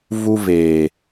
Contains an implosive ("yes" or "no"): no